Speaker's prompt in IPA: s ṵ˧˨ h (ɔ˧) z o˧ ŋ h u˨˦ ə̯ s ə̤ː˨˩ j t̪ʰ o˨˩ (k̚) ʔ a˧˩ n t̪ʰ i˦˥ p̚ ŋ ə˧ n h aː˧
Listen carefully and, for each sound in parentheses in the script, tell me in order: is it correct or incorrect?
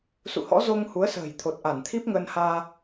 incorrect, incorrect

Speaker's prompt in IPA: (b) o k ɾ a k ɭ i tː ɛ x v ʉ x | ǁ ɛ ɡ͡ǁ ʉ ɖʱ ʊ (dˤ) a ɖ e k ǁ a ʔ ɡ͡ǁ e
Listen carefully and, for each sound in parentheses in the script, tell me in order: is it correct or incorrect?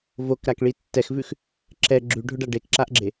incorrect, incorrect

